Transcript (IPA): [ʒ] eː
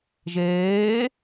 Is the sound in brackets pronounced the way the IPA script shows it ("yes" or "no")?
yes